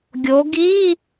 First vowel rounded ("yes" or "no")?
yes